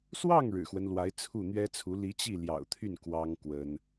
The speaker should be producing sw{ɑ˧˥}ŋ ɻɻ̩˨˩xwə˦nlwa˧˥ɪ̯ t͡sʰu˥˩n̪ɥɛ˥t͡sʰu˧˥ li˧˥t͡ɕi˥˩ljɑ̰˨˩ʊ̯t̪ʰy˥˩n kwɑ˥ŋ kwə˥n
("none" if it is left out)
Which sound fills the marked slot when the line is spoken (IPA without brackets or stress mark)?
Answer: ɑ˥˩